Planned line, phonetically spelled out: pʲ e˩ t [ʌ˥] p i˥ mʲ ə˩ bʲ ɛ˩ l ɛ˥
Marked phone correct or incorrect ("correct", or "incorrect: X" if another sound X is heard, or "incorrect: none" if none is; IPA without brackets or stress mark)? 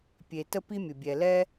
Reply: incorrect: ə˥